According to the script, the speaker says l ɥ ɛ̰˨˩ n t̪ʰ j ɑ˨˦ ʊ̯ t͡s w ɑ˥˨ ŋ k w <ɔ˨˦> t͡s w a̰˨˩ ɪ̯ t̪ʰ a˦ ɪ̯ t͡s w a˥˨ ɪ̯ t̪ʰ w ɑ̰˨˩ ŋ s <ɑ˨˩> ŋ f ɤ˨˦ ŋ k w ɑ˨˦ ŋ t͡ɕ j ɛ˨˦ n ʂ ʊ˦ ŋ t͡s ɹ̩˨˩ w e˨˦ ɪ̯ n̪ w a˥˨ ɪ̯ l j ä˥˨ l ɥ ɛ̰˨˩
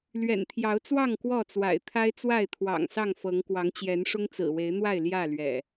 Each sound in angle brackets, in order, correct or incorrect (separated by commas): incorrect, incorrect